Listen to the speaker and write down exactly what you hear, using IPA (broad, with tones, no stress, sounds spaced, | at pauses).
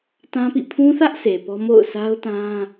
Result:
t ã˦ p ḭ˦˨ pʰ ũ˦ θ ä˦ ʔ sʰ e˨ p ɔ˦ m o̰˦˨ ʊ̯ sʰ a˦ ʊ̯ t ã˦